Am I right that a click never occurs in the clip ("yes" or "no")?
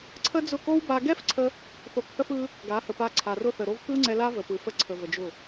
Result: no